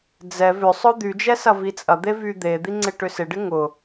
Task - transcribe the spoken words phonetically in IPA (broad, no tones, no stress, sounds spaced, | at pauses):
d͡z ɛ v ʏ sˤ ʊ d̪ y d͡ʒ ɛ s ɐ v i t͡sʼ ɐ d̪ e v y d̪ e d̪ i ŋ͡ǀ ɪ ʈ ʏ s ɪ ɖ ɪ ŋ ʊ